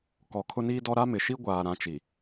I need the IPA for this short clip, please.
kɔ˨kʰʊ˦niː˦dɔ˦ ɾa˦mɪ˨ʃi˦ ɡʷaː˨ ɾã˦t͡ʃi˨

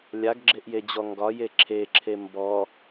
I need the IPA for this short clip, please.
lʲaɡɡ͡ǁeʔjed͡ʑɔ ŋɡɒje ǁʰeǁʰe mbɔ

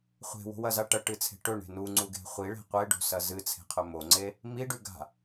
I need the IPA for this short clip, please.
χʷe̤wo̤wɐza ʈɐʈɨt͡sʰe̤ ʈɵɳe̤ nuŋ͡ǀuɡe̤ χʷiɭe̤ qʷeɖo̤sɐ zɨt͡sʰe̤qʰɵ moŋ͡ǀe | miɖʉ ɡa̤

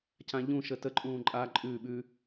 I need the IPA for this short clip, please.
cãʎũ ʃətə ǃʼũːǃʼa ǃʼʉ ɓʉ

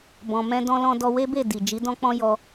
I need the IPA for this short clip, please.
bɔ̃˨ mɛ̃˧dɔ̃˧lɔ̃˧ dɔ˧we˦be˦˨ di˨ d͡ʒi˨˦dɔ̃˦k͡pɔ̃˦jɔ˦

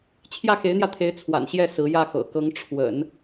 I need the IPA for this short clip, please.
t͡ɕʰjä˥˩xe˧˥ɪ̯n̪jä˧t̪ʰe˧˥ɪ̯ t͡sʰwa̰˨˩nɕjɛ˥˩ sɹ̩˧˥jä˥˩xɤ̰˨˩ kɤ˧˥ŋ ʈ͡ʂʰwə̰˨˩˦n

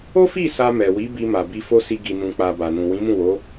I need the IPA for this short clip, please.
o˦fi˦˨ sa˧mɛ˨ wi˨˦ bi˧ma˨ bi˧fo˦si˧ ɡi˨nũ˨k͡pa˨ ba˨nũ˨ wĩ˨˦mũ˦˨wo˨˦

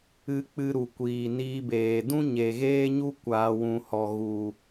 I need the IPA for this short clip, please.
ɨ˧k͡pɨ˧ ɾu˨kʷiː˨ niː˧beː˨ dũ˦ ɲe˨ɣeː˦ɲu˦ kʷaː˧ wũ˨hɔ˨ ɣu˨

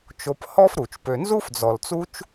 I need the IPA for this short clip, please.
t͡ʃo˧phɔ˦fɾu˨t͡ʃ pø˨nzu˦fd͡zɔ˨lt͡su˦t͡ʃ

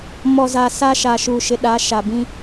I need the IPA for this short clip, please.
mɔ˨za˨ sa˦ʃa˨ʃu˨ ʃɪ˨ɗa˨˦ ʃa˨bĩ˦

